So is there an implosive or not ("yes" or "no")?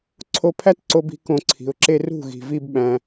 yes